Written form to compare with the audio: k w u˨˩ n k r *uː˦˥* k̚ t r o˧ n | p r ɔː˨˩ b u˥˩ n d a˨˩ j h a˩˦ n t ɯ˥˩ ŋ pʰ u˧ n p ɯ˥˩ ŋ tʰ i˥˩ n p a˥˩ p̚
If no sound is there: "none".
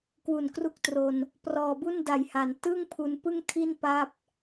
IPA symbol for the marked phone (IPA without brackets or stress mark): u˦˥